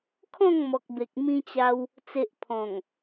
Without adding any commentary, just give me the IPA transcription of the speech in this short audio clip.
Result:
kʰ ɔ̃˥˧ ŋ m ɔ˨ k̚ b e˨ k̚ m ĩ˧ t͡ɕ a˧ w | t͡s e˨ ʔ pʰ ɔ̃˨˩ ŋ

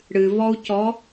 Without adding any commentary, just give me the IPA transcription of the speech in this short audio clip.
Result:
ɽ ɨ v ɔ u̯ c ɔ

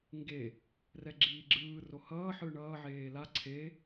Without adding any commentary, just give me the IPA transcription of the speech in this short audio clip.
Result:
ŋ ɡ e | r ɛ ɡ͡ǁ iː ɡ͡ǁ ɯː r o h ʌː ħ ɯː ɳ ʌː ʕ eː l a ǀʰ e

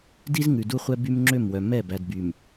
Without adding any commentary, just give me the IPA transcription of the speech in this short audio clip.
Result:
d i˦ z ŋ ʉ˨ d u˦ χʷ ɛ˦ b y˦ m ŋ͡ǁ ø˦˨ m w œ˨ m ɛ˦˨ b æ˨ d b y˨ m

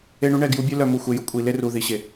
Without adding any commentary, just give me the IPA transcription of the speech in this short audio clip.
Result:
e˦ ɳ u˦ ɳ ɛ˦˨ ɡ j u˦ bʲ œ˦ l œ˨ m u˨ xʷ e˨ j ʊ˦ kʷʼ i˨ l e˦ r u˨ ð i˨ ɕ e˨

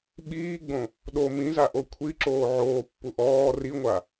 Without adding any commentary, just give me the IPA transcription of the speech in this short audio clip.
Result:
ɓ iː ɡ͡b õ | ɗ o m ĩ z a ʔ o kʷʰ i ǁ oː ʕ oː pː u ʔ ɔː r i ŋʷ a

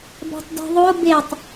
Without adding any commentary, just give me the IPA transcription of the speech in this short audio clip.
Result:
b æ̤ tˤ d e̤ ðˤ o b e tˤ

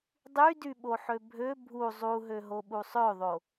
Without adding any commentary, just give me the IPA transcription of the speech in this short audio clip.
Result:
dˤ y d y ɓ o ħ ø bʱ ø bʱ u zˤ u ɦ ø ɦ o ɓ u sˤ ø ðˤ o

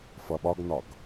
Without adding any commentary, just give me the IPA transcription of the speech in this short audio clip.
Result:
f ʌ ɓ ɒ ɡ n ɒ ɡ

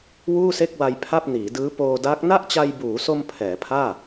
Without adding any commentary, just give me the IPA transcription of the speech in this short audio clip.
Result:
w uː˥˩ s e˥˩ k̚ w a˧ j pʰ a˥˩ p̚ n iː˩˦ d ɯː˦˥ p oː˧ d a˦˥ k̚ n a˥˩ ʔ t͡ɕ a˧ j b uː˩˦ s o˧ m pʰ ɛː˩˦ pʰ aː˥˩

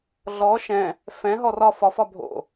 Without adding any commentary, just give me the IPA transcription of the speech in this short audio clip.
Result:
ɮ ɔ ʃ ɛ̃ | f ɛ̃ ɦ ɔ r ɒ f ɒ f ɒ bʱ o̰

